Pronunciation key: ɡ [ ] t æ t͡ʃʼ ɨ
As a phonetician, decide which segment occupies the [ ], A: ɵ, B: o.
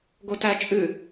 B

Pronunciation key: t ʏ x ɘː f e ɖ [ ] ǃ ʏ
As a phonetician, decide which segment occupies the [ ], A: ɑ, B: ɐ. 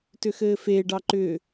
A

